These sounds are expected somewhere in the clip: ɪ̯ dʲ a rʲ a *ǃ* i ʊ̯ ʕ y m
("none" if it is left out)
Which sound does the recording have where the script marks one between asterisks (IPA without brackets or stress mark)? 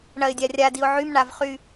d